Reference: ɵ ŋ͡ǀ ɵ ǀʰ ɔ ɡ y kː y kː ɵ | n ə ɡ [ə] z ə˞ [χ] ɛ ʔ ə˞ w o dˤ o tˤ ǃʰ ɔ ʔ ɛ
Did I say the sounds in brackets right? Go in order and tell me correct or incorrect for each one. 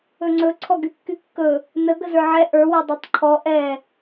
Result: correct, incorrect

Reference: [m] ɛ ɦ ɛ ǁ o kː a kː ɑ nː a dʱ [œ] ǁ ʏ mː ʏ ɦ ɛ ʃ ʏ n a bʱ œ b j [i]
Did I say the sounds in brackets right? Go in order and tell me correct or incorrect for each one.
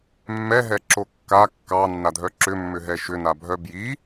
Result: incorrect, correct, correct

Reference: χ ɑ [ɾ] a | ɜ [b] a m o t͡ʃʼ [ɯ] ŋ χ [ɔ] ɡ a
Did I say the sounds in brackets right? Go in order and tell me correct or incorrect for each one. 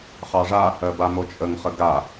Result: incorrect, correct, incorrect, incorrect

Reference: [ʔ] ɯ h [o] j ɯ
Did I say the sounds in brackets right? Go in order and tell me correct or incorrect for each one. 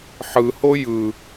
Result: incorrect, correct

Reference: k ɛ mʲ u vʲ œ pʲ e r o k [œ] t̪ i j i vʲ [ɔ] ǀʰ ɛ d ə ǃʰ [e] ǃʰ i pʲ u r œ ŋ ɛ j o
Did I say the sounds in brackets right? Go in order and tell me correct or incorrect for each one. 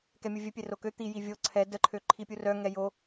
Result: incorrect, incorrect, incorrect

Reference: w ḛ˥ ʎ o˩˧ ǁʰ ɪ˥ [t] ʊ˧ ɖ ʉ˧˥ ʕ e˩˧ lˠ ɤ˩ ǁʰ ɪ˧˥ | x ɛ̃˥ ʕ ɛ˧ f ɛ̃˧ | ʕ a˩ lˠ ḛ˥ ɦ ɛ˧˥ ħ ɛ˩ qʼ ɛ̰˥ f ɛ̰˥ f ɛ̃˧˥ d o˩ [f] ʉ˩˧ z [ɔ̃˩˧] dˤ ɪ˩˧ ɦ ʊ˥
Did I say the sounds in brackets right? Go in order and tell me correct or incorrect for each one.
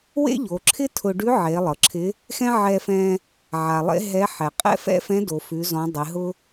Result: incorrect, correct, correct

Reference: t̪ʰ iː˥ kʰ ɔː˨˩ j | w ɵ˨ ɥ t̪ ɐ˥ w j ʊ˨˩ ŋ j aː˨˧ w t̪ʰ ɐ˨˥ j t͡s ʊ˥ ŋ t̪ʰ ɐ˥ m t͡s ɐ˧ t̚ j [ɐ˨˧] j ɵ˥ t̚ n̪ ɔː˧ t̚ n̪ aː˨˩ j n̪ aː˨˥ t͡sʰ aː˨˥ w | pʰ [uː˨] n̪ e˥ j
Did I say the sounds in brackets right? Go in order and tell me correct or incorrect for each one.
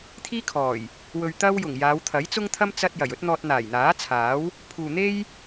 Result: incorrect, correct

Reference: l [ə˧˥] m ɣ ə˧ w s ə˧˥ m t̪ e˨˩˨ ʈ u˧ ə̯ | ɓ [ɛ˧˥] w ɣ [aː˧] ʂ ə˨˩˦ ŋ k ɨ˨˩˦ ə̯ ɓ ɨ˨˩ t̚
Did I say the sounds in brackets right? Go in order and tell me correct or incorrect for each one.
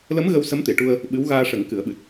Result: correct, incorrect, correct

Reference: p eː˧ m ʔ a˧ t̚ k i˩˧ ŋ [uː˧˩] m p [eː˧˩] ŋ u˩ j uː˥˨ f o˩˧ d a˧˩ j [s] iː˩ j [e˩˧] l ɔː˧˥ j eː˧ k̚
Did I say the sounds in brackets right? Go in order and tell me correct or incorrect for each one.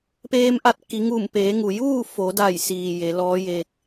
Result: incorrect, incorrect, correct, correct

